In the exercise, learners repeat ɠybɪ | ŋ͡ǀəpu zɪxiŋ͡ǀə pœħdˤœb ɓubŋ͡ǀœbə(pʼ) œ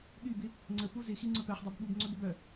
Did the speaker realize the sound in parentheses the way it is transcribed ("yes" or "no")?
no